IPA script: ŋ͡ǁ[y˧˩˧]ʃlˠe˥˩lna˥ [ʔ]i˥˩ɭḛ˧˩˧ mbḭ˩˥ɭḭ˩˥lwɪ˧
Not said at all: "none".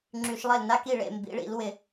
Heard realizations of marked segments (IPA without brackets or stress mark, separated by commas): y˧˩˧, k